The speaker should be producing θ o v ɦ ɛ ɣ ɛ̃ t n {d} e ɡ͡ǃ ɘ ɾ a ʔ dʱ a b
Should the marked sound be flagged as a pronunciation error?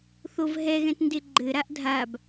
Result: no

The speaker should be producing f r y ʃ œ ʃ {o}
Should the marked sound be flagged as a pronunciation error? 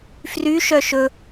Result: yes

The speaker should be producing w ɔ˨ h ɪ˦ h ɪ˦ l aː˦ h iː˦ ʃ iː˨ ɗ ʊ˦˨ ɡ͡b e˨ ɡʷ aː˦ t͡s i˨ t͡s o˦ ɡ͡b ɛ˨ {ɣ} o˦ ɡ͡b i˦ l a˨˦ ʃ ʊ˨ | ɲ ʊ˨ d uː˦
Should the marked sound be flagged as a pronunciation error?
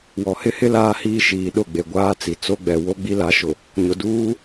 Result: yes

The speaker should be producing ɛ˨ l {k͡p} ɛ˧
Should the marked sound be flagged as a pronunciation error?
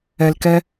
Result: yes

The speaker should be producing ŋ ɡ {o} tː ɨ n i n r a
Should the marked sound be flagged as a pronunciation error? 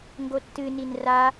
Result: no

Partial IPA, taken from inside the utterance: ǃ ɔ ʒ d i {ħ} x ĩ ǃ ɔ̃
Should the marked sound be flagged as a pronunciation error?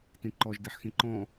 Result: no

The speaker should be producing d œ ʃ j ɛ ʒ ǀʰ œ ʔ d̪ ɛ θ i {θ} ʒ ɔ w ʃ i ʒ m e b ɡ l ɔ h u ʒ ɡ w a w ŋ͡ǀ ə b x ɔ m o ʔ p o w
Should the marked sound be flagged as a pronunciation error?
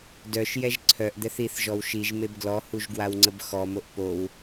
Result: no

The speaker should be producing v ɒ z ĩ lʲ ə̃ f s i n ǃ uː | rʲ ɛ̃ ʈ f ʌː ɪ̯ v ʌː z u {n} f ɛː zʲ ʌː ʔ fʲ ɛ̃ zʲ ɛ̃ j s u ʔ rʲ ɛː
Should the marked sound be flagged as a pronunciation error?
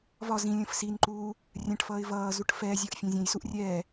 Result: yes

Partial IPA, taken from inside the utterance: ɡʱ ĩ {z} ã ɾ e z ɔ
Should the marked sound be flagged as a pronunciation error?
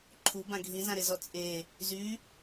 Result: no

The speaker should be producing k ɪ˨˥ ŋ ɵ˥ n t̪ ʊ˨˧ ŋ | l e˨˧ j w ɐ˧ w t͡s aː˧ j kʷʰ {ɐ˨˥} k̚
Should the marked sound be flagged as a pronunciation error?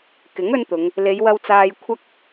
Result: yes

